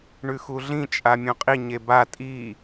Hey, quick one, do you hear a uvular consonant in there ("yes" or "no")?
yes